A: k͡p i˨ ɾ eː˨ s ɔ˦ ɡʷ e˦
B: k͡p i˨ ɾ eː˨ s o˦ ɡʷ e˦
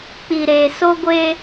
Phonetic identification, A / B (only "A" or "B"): B